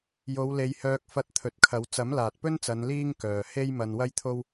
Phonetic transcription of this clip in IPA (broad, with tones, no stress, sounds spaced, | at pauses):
j o˨˧ w l e˨˧ j h œː˧ k̚ f ɐ˧ t̚ t̪ʰ ɵ˨ t̚ kʰ ɐ˨˧ w t͡s ɐ˨˥ m l aː˨ t̚ p ɵ˥ n t͡s ɐ˨˧ n l iː˥ ŋ k œː˨ h e˥ j m ɐ˧ n w ɐ˥ j t̪ʰ o˥ w